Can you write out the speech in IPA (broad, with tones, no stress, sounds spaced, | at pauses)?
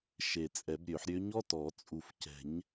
ʃ e˨˩ t͡sʼ ɛ˨˩˦ b ɾʲ ø˨˩˦ ħ ɾʲ ø˧˥ ɲ ɔ˧˥˧ t ɔ˨˩˦ t͡sʼ u˨˩ f c ɛ̤˨˩˦ ɲ